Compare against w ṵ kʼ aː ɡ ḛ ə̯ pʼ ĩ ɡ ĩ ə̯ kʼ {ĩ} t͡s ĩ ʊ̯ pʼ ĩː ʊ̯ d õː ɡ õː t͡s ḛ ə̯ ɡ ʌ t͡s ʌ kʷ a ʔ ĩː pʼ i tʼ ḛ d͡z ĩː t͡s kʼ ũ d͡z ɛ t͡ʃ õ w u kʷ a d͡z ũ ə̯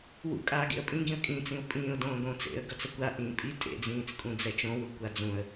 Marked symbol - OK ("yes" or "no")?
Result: yes